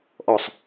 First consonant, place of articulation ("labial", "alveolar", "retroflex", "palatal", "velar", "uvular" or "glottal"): glottal